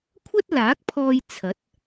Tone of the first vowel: high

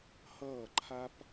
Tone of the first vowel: falling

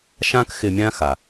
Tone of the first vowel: high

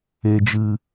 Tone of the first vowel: low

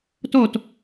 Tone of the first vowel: falling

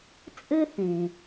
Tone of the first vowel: high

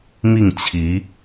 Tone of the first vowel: falling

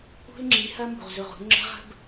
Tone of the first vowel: high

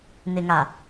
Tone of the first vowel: low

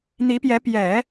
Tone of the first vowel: rising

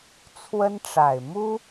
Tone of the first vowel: high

